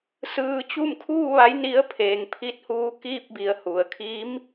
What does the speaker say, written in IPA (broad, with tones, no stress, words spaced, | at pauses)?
sɯː˧t͡ɕu˥˨m kʰuː˥˨ʋa˧˥j ni˧˥ə̯ pʰeː˩˧ŋpʰi˧˥t̚huː˧˥ kiː˥˨p̚bi˩˧ə̯ hu˩ə̯kʰi˧˥m